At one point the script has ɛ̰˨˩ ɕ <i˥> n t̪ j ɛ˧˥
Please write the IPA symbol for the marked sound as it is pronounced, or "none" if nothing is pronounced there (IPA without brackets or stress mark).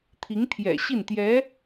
i˥˩